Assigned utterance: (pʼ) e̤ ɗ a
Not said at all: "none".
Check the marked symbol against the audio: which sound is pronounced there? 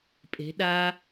pʼ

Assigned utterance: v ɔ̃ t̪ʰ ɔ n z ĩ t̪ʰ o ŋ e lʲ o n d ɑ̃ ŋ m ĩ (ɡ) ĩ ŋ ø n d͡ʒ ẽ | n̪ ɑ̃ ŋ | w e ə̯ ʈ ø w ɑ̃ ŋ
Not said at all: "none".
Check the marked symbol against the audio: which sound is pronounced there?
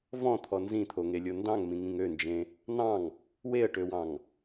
ŋ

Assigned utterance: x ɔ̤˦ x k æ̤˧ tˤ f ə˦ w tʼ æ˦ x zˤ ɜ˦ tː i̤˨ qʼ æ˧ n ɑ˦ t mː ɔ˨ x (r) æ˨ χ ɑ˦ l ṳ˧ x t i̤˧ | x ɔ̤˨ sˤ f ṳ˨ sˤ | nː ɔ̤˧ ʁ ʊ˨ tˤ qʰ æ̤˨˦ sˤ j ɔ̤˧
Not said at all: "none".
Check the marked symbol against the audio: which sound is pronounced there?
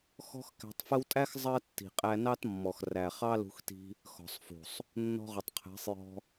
r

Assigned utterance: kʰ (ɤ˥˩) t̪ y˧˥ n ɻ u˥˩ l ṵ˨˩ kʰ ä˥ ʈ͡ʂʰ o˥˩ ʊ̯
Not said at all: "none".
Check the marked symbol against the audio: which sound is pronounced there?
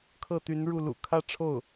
ɤ˥˩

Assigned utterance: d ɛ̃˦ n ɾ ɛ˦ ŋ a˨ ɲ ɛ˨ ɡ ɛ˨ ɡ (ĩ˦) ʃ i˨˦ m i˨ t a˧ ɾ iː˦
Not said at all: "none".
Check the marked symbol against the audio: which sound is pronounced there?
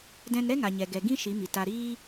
ĩ˦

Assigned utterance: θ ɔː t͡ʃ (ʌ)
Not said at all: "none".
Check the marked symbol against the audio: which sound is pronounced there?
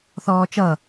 ʌ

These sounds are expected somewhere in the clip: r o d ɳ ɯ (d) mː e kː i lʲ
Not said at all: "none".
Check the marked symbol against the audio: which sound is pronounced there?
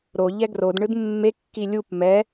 d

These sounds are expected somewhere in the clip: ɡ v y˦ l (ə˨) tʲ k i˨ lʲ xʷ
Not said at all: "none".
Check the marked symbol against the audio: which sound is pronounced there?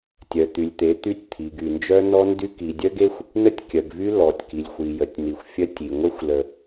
ɔ˨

